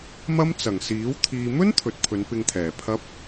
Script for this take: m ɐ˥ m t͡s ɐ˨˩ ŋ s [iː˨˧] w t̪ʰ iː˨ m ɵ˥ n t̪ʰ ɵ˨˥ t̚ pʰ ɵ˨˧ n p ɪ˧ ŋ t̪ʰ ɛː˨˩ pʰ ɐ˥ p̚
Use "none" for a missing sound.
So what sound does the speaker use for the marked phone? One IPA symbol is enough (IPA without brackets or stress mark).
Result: iː˨˥